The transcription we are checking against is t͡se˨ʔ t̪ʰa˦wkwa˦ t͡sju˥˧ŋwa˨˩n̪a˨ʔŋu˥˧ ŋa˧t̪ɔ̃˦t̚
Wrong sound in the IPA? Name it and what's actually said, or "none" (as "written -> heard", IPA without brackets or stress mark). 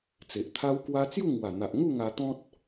none